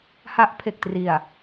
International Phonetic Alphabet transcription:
h a˦˥ ʔ pʰ e˨˩ k̚ t r i˨˩ a̯

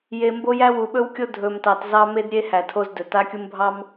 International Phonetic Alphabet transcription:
j e˨ m b o˦ j æ˦ w u˨ ɓ ɵ˦ w kʲ o˦ dʱ ɵ˨ m t ɑ˨ t z ɑ˦ m e˦ d ɾʲ e˦ h æ˨ tʰ o˦ z d ɵ˨ t a˦ kʲ u˦ m bʱ ɑ˦ m

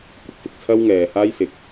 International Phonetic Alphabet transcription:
kʷ ɪ˥ k̚ f ɪ˨ k̚ t͡sʰ ɐ˥ w ŋ ɛː˨ h aː˥ j s ɪ˨˥ k̚

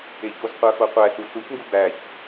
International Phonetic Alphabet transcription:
e ç o z qʷ æ f o qʷ æ ɬ u ɬ u ç ŋ ɡ u b æ ç

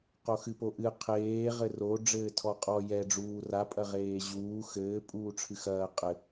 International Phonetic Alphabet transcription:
q o x ɨ p o ʔ ɨ qʰ eː ʁ ɘ r o ɖ͡ʐ ɘː tʰ ɔ qʼ ɔ j ɛ ɖ͡ʐ uː r a pʼ ɐ ʁ eː ʑ uː x ɘː pʼ uː ʈ͡ʂʰ ɨ x ɐː qʼ ɘ

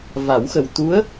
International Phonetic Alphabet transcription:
v a˨˩˦ w x ə˨˩ w t̪ u˧˥ ə̯

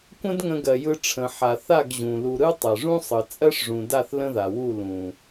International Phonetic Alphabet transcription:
kʷ ə̃˦ d ŋ ə̃˧ ɡ ɜ˨ j ɯ˧ ʈ͡ʂʰ ə̃˨ ħ a˨ θ a˦˨ ɡ ʑ ũ˨ l u˧ ɾ ɯ˦ tˤ ɜ˨ ʐ ũ˦ sˤ ɯ˨ t͡sʼ ɜ˦ ʂ ʐ ũ˨ d a˦˨ θ l ə̃˦ ð a˨ w u˦˨ l ũ˨

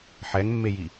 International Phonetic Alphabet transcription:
ħ ɛ ŋ mː e j i

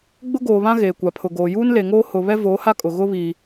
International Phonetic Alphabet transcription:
ɡ͡b ʊ˦ ɡ oː˨ β ã˦ ɣ eː˨ kʷ a˨ pʰ ʊ˨ ɡ oː˨ j uː˦ n l e˨ ŋ oː˦ h ʊ˨ β ɛ˦ v oː˨˦ h a˦ kʼ ʊ˨ ɣ ʊ˦ β iː˨

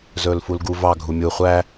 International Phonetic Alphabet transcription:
z ɵː l f u l ɡ u v ɑ ɡʱ u mʲ u χʷ æ

